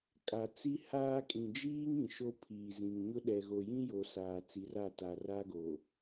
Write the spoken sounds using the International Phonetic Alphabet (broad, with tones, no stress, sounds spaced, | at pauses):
kʼ a˨ t͡s i˦ h aː˦ kʼ ĩ˨ d͡ʒ iː˦ ŋ ĩ˨ ʃ o˦ pʰ iː˨ z ĩ˨ ŋ ɲ ʊ˦ ɗ ɛ˨ ɣ o˨ j ĩ˦ j o˨ s aː˨ t͡s i˨˦ r a˦˨ t a˨ r a˦ ɡ o˨